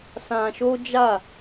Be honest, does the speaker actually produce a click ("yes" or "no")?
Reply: no